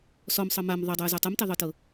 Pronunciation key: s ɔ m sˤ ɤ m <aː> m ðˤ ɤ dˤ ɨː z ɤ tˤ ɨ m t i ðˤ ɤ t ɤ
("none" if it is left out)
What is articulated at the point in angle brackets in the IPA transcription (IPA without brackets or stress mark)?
a